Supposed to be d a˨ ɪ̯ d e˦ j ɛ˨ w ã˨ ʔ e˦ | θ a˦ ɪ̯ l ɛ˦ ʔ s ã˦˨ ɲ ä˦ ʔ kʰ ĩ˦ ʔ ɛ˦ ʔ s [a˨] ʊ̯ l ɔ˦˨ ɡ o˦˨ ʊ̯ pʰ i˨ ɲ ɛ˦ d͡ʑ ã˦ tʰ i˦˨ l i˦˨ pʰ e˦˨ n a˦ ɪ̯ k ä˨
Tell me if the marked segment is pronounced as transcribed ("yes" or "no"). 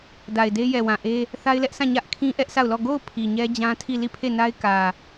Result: no